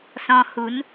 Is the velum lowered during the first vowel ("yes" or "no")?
yes